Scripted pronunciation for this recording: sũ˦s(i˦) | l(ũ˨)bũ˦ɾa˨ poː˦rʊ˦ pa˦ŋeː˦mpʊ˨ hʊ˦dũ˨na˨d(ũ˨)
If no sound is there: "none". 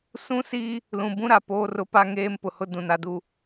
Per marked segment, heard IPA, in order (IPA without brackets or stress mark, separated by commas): i˦, ũ˨, u˨